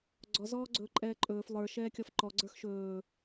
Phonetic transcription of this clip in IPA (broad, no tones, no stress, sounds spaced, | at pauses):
ɡ͡ǀ ɔ z ɔː ɡ͡ǀ ɵː ǃʼ ɛː ǃʼ ɵː f lˠ ə˞ ʃ ɛː kʲ ɔ f ǃ ɔ ɡ͡ǀ ə˞ x ʃ ɵː